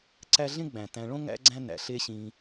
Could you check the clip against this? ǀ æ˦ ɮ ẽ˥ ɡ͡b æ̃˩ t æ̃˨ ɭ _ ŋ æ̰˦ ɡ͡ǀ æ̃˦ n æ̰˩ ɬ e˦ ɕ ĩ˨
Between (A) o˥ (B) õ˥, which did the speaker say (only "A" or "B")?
B